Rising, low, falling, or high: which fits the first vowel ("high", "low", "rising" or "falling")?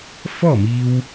falling